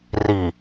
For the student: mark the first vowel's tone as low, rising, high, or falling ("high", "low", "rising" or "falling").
low